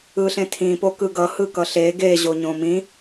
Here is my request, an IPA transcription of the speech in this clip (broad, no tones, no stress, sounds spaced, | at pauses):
ɯ ɬ ẽ tʰ ĩ p o k ɯ ɡ ʌ h ɯ k ʌ ɬ e ɡ e ʑ o ɲ õ m ĩ